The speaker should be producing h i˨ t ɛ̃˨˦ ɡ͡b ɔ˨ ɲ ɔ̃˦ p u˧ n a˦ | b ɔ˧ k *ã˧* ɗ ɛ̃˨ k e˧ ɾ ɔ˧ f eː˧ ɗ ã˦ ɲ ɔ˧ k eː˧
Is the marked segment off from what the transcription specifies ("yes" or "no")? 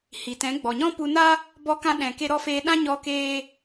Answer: no